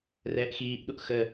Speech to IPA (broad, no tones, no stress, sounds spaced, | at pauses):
r ɛː ʔ x iː ʔ ɗ u ʔ x ə